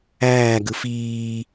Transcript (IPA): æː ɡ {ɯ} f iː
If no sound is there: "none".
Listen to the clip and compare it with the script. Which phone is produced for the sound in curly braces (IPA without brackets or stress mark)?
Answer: ɯ